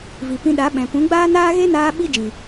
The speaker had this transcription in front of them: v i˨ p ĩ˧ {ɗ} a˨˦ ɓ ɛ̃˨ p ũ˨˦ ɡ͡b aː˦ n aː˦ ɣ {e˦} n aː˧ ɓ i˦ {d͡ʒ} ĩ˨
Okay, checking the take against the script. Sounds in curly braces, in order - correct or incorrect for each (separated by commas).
correct, correct, correct